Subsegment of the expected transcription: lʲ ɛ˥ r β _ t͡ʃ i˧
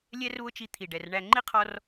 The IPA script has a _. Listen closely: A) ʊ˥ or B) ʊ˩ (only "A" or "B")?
A